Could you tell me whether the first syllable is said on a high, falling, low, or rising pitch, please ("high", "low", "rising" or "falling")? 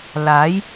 rising